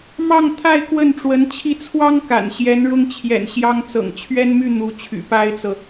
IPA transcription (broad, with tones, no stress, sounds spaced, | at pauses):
m ɑ˥˧ ŋ t̪ʰ a˥˧ ɪ̯ k w ə˥˩ n ʈ͡ʂ w ə˧˥ n t͡ɕʰ i˥˩ t͡sʰ w ɑ˥ ŋ k a̰˨˩ n ɕ j ɛ˧˥ n ɻ ʊ˥ ŋ t͡ɕʰ j ɛ̰˨˩ n ɕ j ɑ˥ ŋ t͡s ɤ̰˨˩ ŋ t͡ɕʰ ɥ ɛ˥ n m y˥˩ n̪ u˧˥ t͡ɕʰ y̰˨˩ p a˥ ɪ̯ t͡s ɤ˨